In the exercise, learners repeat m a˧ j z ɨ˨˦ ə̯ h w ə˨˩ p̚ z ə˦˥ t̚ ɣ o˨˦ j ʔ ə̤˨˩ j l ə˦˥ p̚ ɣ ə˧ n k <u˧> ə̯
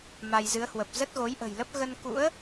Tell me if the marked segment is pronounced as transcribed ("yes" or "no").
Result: no